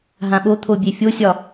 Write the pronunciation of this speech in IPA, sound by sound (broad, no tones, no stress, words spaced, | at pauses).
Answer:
ɦãɓot̪ʰo bʲefʲosʲɒ